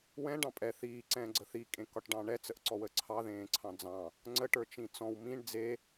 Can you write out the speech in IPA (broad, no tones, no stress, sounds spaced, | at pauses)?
w ɛ̃ ɖ ɑ̃ pʼ ɛ θ iː ǀ ɛ̃ː ɡ͡ǀ ə θ i kʼ ẽ k ɒ ʈ ɖ ɑ̃ ɳ ɛ t͡s ə ʔ ǀ ɔ w ə ǀʰ ɑ ð ẽː ǀʰ ɑ̃ d͡z ɑ̃ | ŋ͡ǀ ə ʈ ə˞ t͡ʃ ĩ t͡s ɔ̃ w m ĩ ɳ d͡z e